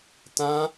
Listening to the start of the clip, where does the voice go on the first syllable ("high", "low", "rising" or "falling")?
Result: high